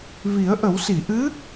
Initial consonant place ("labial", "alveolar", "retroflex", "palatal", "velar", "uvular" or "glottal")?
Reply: labial